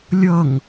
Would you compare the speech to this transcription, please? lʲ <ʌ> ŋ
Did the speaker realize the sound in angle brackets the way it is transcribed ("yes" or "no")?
yes